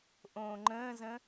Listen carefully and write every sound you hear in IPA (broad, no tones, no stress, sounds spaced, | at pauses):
ʔ õː ŋ͡ǃ ə̃ː z ə̃